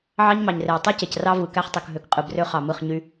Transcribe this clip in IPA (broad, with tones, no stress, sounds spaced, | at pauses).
ʕ ɑ˦ ɲ m ɑ˨ ɲ r e˨ w tˤ ɯ˦ c e˨ c r ɑ˦ v ɯ˨ k æ˦ χ tˤ ɯ˨ k ɦ ø˨ k qʼ ɯ˨ b r ø˦ χ ɑ˨ m ɯ˦˨ χ ɲ y˦